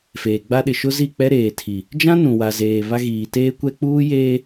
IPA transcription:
feː˨ɡ͡ba˦ ɗɪ˨ʃʊ˦zi˦˨k͡pɛ˦ ɾeː˨tʰi˨ | d͡ʒã˦ nũ˨wa˨zeː˨βa˦ ɣiː˨teː˦kʷɛ˦ k͡puː˦jeː˦

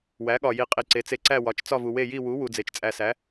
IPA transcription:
wæ˩˥ɠɒ˨ji˨ qʼi˨ǀe˩˥t͡se˨ ǀæ˦˨wɒ˩˥t͡ʃ t͡sɒ˦˨vu˨we˦˨ ji˦˨wu˩˥ wu˨d͡ze˩˥t͡ʃt͡sʼæ˨sæ˩˥

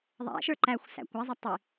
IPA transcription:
ðˤæ̰ʃə˞ ǃæxʷ sæ̰kʷazˤɐ tˤi

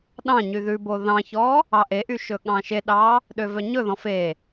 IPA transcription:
ɗɑ̃ɲy ðʉbo ðɑ̃çɔ | ɑʔeʔy ʃɵɠɑ̃ʃeɗɑ | ɗøvœɲɵðɔ̃ fe

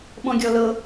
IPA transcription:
ɓɔ̃ɡʲɔlɤ

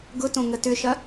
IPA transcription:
ɡʊtõ ŋətʏʃɐ

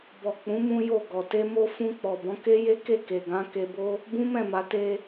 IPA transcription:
bɔ˨k͡pũ˨˦ mũ˦jo˦˨ɡɔ˨ te˧mo˧ fũ˧k͡pɔ˨bɔ̃˨˦ ke˦je˦ ke˦˨ke˨ɡã˨˦ ke˧bo˦ | bũ˦mɛ̃˦˨ma˨˦ te˧

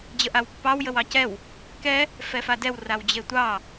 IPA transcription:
d͡ʑəʔawpːɑw jəwɑcɛw | kɛ | fɛfadɛw rawd͡ʑetʷɑ

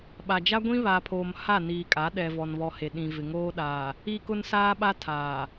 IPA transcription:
ɓa˨d͡ʒa˦ɡʷĩ˦ βa˨pʰoː˨m ha˦˨niː˨kʼa˨˦ ɗɛ˨vɔ˨nβɔ˨ he˨ɗĩ˨ vɪ˨ŋoː˦ɗaː˨ | i˦kʊ˦nsaː˦ɓa˦ tʰaː˨

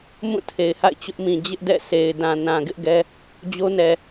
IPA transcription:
mũ˦˨tʰe˨ɪ̯ha̰˦˨ɪ̯ t͡ɕʊ˦ʔmĩ˨ d͡ʑɪ˦ʔ dɛ̰˦˨sʰe˨ɪ̯dã˨ nã˨ɡɪ˦ʔɡɛ˦ | d͡ʑo˦nɛ˨

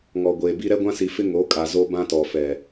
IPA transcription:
ŋɔ˨ɡʷeː˨bi˦ ɾɛ˦ɡʷã˦si˨fɪ˦ ŋo˨˦kʼa˨ zo˦bã˦tɔ˨ fɛ˨

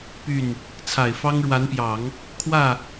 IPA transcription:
py˥˩n | t͡sʰa˨˩ɪ̯fɑ˥ŋɻwa˧˥npjɑ˨˩˦ŋ | kʰwä˥˩

